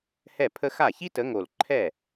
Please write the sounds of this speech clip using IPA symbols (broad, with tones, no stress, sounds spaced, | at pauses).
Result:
h ɛ˥˩ pʰ ə˥ x a˥˩ ç i˥ t ə˨˦ ŋ o˨˩ l ǃʰ ɛ˥˩